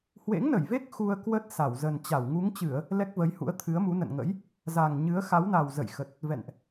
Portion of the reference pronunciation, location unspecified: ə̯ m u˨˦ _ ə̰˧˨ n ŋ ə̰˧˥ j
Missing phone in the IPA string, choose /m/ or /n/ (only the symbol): n